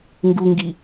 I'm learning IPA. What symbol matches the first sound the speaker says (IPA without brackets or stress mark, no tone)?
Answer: ŋ